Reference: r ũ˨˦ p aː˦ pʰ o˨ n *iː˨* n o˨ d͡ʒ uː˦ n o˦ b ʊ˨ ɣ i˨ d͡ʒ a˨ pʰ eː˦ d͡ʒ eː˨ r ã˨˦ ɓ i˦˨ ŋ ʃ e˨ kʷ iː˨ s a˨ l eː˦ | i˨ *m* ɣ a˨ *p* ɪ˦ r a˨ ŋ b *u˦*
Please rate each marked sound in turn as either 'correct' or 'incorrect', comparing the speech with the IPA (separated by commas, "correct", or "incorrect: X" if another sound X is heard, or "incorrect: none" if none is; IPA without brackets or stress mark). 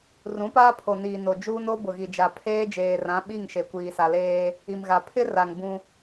correct, correct, incorrect: pʰ, incorrect: ũ˦